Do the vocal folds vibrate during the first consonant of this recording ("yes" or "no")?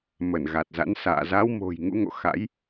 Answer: yes